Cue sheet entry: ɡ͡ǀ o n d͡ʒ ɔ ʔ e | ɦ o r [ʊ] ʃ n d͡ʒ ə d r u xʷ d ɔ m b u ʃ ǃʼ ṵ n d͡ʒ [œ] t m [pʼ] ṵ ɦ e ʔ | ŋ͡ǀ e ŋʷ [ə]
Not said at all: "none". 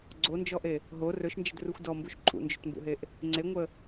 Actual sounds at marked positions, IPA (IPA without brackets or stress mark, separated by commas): ɵ, ɵ, b, ə